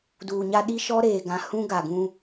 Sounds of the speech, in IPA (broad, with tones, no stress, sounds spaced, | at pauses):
d uː˨ ɲ a˦ ɗ i˦ ʃ ɔ˦ ɾ eː˨ ɡ ã˨ h ũ˦ ɡ a˨ ɡ ũ˦